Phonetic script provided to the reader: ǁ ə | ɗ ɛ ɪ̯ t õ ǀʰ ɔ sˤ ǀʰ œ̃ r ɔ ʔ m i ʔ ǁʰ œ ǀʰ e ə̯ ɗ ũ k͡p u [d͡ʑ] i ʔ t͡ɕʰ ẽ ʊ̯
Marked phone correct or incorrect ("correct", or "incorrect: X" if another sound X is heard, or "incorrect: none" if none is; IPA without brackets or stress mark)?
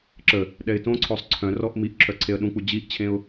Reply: correct